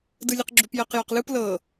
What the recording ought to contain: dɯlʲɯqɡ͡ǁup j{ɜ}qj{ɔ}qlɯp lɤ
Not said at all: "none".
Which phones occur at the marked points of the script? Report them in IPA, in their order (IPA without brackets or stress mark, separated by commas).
ɜ, ɔ